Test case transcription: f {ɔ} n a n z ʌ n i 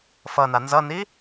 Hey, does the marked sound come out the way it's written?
no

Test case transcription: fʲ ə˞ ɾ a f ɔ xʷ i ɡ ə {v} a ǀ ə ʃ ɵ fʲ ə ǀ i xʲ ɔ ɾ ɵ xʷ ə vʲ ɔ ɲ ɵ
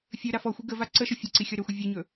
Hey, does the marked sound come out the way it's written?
yes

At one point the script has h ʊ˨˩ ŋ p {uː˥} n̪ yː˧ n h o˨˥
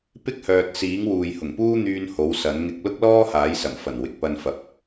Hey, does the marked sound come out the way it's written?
yes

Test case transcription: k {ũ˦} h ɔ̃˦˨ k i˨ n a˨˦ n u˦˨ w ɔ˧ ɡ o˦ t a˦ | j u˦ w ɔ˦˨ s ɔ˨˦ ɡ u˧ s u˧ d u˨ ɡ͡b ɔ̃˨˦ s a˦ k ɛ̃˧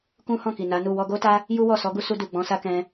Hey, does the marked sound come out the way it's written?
yes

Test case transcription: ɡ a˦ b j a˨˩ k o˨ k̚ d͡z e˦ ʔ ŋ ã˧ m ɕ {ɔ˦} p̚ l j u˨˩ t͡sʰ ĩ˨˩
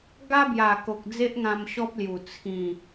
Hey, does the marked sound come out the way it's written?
yes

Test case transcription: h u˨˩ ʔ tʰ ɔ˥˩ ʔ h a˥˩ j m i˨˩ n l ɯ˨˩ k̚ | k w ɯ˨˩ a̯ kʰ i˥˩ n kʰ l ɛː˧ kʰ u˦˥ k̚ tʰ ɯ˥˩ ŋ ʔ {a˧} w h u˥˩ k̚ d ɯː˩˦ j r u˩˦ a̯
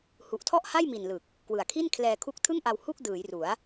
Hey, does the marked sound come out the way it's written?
yes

